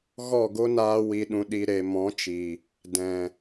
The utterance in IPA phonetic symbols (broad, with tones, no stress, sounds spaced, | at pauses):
ɣ ɔ˦˨ ɡ o˦ n aː˧ w i˨ ɗ ũ˨ ɗ i˨ ɾ e˨ m ɔ̃˨˦ t͡ʃ i˨ | d ɛ̃˨